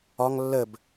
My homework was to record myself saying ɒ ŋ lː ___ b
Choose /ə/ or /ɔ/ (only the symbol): ə